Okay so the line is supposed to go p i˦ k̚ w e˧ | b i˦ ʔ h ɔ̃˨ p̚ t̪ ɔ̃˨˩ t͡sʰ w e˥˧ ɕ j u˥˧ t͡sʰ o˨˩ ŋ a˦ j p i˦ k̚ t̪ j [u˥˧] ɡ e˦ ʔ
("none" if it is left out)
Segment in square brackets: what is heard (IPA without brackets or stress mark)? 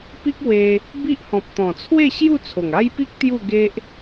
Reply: u˥˧